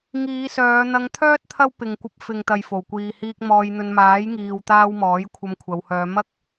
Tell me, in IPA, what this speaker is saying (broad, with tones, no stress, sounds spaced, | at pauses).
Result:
ŋ iː˨˧ s œː˨˧ n̪ ɐ˧ ŋ t̪ʰ œː˥ t̚ t̪ʰ ɐ˥ w p ɪ˨ ŋ kʷ ɐ˧ p̚ f ɪ˨ ŋ t̪ ɐ˨ j f o˨˩ w kʷ iː˨ h iː˧ k̚ m ɔː˧ j n̪ ɵ˧ n m aː˨˥ j ŋ iː˨ w t̪ aː˧ w m ɔː˨˥ j kʷʰ ɐ˧ m kʷʰ ɐ˨˧ w h œː˨˧ m ɐ˥ k̚